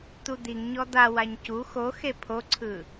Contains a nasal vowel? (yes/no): no